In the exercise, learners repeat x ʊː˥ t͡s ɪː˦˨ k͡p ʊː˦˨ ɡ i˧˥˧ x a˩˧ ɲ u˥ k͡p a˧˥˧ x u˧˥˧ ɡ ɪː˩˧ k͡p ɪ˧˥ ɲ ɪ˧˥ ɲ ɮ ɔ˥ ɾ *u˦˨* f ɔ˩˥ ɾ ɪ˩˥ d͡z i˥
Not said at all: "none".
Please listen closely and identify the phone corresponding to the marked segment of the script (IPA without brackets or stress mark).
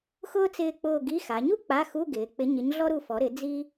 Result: u˦˨